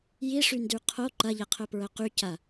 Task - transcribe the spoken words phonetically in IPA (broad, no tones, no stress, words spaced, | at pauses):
jiʂyndy qʰo ǃɐʎɐqʰœpɹœ qycɐ